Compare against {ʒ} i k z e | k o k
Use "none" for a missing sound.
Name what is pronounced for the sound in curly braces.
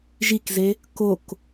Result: ʒ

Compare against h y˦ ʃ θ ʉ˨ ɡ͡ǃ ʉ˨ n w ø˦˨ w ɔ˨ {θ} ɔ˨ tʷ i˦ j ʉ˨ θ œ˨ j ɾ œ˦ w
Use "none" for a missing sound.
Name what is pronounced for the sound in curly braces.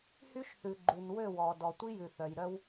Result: d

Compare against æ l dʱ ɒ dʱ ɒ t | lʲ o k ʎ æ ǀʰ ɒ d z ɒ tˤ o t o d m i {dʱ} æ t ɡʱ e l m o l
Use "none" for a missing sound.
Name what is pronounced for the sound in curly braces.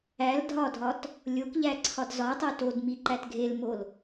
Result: ǃ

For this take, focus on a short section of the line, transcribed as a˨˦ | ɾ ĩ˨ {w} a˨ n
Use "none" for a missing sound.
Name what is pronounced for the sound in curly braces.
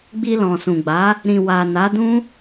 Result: w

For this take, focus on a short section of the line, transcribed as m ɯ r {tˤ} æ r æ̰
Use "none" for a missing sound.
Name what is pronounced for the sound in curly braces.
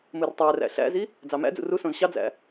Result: tˤ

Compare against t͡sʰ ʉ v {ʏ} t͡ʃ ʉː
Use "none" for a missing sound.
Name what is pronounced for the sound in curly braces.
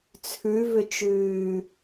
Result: ʏ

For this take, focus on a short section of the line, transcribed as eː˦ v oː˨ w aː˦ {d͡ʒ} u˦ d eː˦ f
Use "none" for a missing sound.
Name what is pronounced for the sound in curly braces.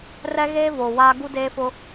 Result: ɡ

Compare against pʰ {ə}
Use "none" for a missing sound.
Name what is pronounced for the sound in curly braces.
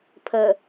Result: ə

